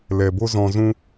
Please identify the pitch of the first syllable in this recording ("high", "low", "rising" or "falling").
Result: low